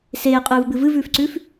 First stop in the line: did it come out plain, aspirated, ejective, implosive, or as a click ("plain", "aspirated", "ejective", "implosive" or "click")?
ejective